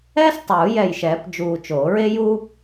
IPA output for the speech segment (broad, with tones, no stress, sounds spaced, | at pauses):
ɛː˥ s tˤ uː˨˩˦ j ɛ˧˩ j ʃ ɛː˨˩˦ p d͡ʒ uː˧˩ t͡ʃ oː˨˩˦ ɹ e˥ j u˥